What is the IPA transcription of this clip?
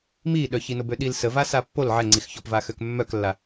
m i ɗ œ ç i n o b ø ɗ i l s ə v a s a pː o l ʕ ɛ ŋ͡ǀ i x ç ɔ p v a x ø k mː œ k lː a

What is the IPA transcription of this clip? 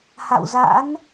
h a̰˧˨ w z a̰ː˧˥ n

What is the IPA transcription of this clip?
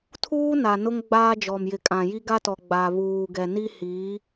tʰ uː˦ n a˨ n ʊ˦ ŋ ɡ͡b aː˦ d͡ʒ ɔ˨ m j ɪ˨ kʼ ã˨ j i˦ ɡ a˦ t ɔ˨ ɡ͡b a˨ β uː˨ ɡ ɛ˨ n i˦ h iː˨˦

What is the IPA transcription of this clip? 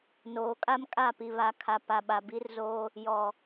n oː˨ kʼ a˦ m kʼ a˦˨ p i˨ β a˨ kʰ a˨ p a˨ ɓ a˨ b i˦ r z oː˦ | j ɔ˨

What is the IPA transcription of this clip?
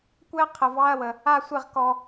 kʷ ɛ˥ qʰ ə˦ v ɑ˥ ɐ̯ w ə˦ | a˥ sʷ e˥ ʁ k ɔ˥

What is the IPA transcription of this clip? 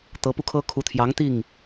t̪ ɤ˧˥ p u˧ kʰ ɤ˥ kʰ u˧˥ t̪ʰ j ɑ˧˥ ŋ t̪ i˥˩ ŋ

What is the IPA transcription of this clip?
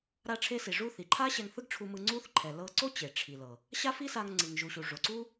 ɾ a˧ ʈ͡ʂʰ e˧ s i˩ ʐ u˧ θ i˩ ǃʰ a˥ ɕ ɛ˧ ŋ θ ɯ˥ ɡ ʈ͡ʂʰ u˧ m ɯ˧ ŋ͡ǀ u˥ θ ǃʰ ɛ˩ l ɤ˧ ǀ o˥ t͡ɕ e˩ ʈ͡ʂʰ i˩ l ɤ˩ | ɕ a˥ f i˥ s a˧ ŋ ŋ͡ǀ ɯ˩ ŋ ʒ u˩ ɕ u˩ ʐ o˩ ǀ u˥

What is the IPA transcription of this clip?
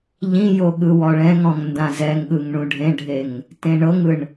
ʎ ĩ j o ɠ ɯ w ɔ ɭ ɛ̃ ŋ ɔ̃ ŋ n d ã z ɛ ŋ ɠ ɯ ŋ ɳ ũ ɖʱ ẽ ɖʱ e ŋ | t ẽ ɳ ɤ ŋ ɯ ɳ

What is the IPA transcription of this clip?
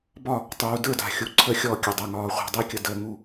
b ɒ˥˩ | tˤ uː˩ d ə˞˥˩ d a̤˩ xʲ u˩ ǀʰ ə˧˩ xʲ ɔ˧˩ kʲ ə˩ dˤ ɛ˩ ŋ ɒː˩ χʷ ɛ̤˧˩ dˤ i˥˩ kʲ ə˧˩ d əː˩ ŋ u˧˩

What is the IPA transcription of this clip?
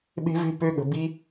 ɓ e̤˦ v e̤˦ p ø˧ ɠ ə̤˨ b i˧

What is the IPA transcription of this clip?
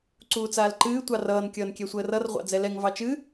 ǀ uː t͡s aː l ǃ ɨː tʷ ɑ r ʌː n kʲ ʌː n kʲ ɛ sʷ əː r ʌ r ʁʷ ɑ̰ d͡z ɛ l ɛ ŋ v ɑ t͡ʃ ɨ

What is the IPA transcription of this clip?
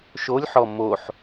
ʃ o lʲ ħ ɔ m o ħ

